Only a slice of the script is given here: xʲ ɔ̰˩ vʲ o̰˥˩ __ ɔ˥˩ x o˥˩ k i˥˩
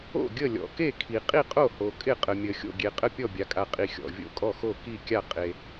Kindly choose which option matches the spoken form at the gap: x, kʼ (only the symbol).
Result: kʼ